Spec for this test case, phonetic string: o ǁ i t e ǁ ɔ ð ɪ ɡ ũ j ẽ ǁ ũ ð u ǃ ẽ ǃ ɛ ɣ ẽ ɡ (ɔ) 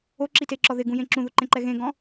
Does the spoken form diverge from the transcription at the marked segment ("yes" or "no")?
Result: yes